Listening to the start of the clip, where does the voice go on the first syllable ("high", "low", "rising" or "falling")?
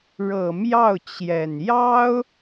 low